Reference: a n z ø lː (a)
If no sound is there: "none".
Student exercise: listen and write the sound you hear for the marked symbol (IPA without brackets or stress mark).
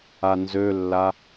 a